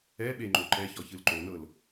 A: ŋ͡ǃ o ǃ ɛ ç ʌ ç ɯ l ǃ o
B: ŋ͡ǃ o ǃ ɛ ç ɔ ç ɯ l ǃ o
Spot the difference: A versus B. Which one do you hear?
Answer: B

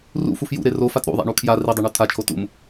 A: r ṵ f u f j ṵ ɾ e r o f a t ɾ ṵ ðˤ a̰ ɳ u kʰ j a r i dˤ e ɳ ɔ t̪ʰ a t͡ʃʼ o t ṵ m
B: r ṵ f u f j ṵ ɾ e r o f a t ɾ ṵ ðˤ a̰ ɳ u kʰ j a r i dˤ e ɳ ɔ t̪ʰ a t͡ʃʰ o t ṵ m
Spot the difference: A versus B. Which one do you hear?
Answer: B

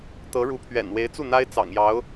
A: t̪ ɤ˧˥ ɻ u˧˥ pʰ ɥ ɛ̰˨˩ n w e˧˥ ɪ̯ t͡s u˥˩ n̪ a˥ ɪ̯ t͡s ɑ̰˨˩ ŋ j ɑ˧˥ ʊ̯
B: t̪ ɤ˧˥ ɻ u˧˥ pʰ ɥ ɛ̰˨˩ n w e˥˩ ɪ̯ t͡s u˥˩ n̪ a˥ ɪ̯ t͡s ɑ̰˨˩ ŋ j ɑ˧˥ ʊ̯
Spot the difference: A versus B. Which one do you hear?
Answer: A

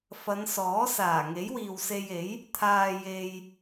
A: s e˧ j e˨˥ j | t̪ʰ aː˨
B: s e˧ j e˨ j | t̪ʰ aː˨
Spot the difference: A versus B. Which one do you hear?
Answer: A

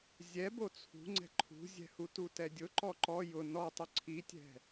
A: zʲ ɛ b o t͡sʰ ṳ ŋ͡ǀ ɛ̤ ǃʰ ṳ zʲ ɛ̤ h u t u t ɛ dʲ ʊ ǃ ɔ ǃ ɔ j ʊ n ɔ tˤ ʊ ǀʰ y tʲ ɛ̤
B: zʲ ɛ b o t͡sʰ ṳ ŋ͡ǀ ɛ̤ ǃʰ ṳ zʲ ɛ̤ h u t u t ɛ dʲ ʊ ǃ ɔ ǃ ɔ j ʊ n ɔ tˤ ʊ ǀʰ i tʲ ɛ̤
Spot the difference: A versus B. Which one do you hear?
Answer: B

